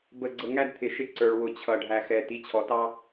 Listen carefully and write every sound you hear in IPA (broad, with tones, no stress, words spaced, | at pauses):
bə˨ɡ͡ǀə˨ŋæ˦d t̪ʰɪ˨ʃɪ˦ǀə˞˨ɭ wʊ˨t͡ɕʰʌ˨ ɖʱæ˨xɛ˨ ti˨˦t͡ɕʰɔ˨tɑ˦